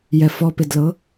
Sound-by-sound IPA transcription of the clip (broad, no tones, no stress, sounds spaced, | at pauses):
j ɛ f ɔ p ɪ d l ɤ